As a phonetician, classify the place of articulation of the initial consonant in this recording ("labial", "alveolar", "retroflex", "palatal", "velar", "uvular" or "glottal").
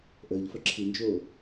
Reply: glottal